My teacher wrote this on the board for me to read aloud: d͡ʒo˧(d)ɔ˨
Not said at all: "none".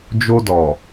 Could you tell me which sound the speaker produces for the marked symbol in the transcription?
d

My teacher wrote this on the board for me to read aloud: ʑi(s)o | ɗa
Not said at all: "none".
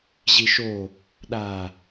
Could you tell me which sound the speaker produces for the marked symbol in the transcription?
ʃ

